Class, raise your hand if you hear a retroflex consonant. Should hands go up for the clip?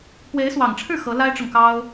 yes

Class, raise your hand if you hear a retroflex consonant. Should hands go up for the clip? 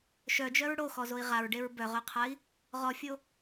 yes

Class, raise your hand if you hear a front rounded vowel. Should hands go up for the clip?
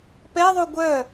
yes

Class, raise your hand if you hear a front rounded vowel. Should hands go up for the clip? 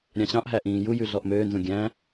yes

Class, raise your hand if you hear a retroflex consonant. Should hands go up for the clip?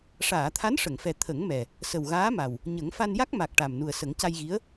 yes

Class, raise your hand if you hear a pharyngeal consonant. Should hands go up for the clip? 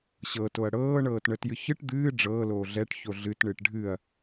no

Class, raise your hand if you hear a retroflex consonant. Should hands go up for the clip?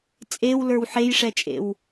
yes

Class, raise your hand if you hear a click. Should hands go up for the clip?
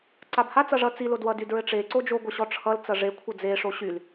yes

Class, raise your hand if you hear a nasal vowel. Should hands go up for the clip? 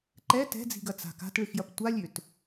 no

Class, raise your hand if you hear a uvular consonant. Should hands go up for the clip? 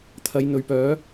no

